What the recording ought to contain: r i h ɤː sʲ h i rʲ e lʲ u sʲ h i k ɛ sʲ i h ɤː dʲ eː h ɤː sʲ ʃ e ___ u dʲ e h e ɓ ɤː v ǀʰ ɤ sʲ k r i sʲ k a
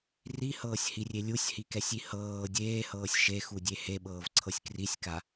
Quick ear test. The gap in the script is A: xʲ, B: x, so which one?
B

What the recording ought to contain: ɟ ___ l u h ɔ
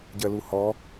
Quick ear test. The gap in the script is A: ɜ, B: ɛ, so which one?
A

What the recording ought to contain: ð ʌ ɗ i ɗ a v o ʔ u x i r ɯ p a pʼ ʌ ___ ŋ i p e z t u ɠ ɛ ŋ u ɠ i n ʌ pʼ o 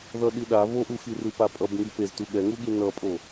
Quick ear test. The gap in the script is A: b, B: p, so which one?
A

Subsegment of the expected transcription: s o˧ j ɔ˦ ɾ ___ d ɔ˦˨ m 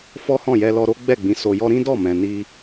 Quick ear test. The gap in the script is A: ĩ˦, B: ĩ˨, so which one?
A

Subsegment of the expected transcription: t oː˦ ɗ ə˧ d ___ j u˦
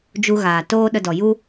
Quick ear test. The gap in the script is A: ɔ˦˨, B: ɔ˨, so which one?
B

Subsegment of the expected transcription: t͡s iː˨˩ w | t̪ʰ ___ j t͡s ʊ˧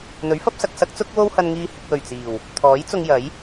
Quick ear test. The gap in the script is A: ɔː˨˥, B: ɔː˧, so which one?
A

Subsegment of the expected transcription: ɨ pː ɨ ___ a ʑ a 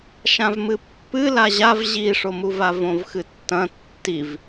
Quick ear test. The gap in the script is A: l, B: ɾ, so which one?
A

